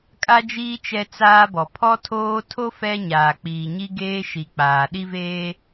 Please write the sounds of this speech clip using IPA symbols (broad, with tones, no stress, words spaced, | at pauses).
kʼa˦d͡ʒiː˦ t͡ʃɛ˦t͡saː˦bɔ˨ pʰɔ˦tʰoː˦ tʰo˦ fɛ˦ɲaː˨k͡piː˨ɲi˦ ɡeː˦ʃi˨k͡paː˨ ɗi˦veː˦